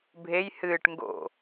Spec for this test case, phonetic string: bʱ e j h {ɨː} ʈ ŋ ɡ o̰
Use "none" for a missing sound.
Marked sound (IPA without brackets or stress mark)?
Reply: ɨː